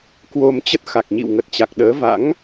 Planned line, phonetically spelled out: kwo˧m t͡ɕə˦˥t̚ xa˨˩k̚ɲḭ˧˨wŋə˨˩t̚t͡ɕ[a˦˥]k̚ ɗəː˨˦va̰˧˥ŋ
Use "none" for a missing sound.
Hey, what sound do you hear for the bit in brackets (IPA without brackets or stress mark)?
a˨˩